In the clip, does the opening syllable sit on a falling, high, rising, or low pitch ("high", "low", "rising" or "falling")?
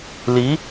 rising